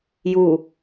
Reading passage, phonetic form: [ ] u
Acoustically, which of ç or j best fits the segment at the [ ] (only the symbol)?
j